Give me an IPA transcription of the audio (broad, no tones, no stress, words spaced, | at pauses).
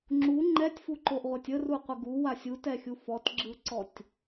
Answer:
ŋ͡ǁu ŋ͡ǃɛtʲfuǃoʔʁʷɛtʲ əruqʷə ɡuwa sʲutɛxʲu fɔtɡ͡ǁɯǀɔtʲ